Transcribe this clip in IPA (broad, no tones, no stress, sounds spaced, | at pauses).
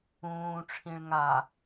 ũː ʈ͡ʂʰ ĩ ɭ ŋ a